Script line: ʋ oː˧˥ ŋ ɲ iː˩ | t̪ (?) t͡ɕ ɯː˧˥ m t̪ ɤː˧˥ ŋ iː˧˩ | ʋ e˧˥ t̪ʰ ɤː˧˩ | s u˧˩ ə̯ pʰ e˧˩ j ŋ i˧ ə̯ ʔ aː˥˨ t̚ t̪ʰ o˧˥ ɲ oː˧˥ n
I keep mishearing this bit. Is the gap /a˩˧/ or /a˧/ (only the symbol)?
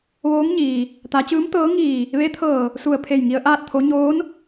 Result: a˩˧